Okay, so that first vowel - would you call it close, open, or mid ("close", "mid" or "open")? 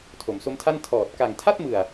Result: mid